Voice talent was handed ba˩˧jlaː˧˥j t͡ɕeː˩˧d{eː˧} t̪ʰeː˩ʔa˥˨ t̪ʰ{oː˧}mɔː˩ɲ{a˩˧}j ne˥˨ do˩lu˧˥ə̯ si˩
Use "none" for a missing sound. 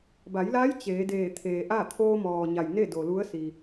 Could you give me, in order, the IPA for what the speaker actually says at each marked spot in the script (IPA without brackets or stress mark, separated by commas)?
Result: eː˧˩, oː˧, a˩